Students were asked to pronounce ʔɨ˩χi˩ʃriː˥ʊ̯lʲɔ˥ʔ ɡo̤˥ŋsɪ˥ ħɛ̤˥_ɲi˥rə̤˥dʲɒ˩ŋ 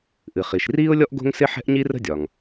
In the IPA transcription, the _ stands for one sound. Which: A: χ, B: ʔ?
B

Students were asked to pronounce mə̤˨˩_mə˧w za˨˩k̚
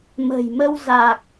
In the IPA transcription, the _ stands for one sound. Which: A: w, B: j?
B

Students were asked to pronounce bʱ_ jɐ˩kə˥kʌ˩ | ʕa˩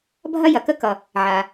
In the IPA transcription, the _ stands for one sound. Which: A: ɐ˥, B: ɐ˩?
A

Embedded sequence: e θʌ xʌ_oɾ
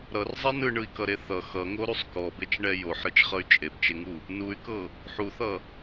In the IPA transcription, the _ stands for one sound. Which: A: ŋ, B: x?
A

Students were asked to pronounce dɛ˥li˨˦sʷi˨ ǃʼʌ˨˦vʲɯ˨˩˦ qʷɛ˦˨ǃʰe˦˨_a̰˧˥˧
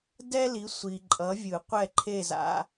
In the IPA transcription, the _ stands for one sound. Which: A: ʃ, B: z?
B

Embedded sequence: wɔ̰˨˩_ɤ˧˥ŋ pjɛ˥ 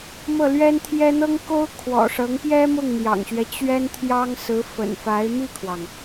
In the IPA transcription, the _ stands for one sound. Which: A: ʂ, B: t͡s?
A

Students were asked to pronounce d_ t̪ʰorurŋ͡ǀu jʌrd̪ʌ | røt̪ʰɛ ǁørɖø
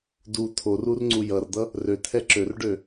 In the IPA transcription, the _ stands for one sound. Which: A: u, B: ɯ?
A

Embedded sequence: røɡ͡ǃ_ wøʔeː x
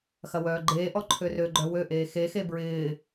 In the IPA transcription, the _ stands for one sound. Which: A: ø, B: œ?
B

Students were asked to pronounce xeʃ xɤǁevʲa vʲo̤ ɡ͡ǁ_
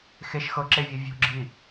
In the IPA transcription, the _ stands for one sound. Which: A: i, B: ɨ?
A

